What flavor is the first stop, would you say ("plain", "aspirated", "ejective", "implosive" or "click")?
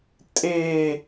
ejective